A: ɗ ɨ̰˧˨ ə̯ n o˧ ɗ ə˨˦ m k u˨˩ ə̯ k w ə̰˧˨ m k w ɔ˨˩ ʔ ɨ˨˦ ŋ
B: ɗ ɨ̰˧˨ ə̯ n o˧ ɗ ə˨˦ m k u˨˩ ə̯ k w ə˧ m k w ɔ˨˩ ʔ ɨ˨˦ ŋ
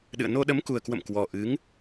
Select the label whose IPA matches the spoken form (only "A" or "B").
A